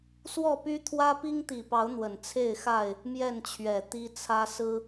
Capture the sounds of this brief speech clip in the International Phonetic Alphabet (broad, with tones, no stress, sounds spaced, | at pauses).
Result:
s w ɔ˥˨ p y˦ t̪ʰ w ä˦ p i˦ ŋ t̪ i˨˩ p ɑ˨˦ ʊ̯ n̪ w ə˨˩ n t͡sʰ e˥˨ ɪ̯ x a˥˨ ɪ̯ | m j ɛ˥˨ n t͡ɕʰ ɥ ɛ˨˩ t̪ i˦ t͡sʰ ä˦ s ɹ̩˦